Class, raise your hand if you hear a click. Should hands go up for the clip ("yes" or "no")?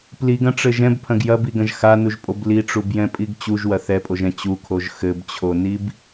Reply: no